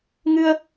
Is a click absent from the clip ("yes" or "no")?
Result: yes